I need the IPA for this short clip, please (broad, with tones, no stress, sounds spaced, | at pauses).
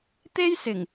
t̪ e˥ j s ɪ˨˩ ŋ